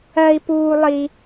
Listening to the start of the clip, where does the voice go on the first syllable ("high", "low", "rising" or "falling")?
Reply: high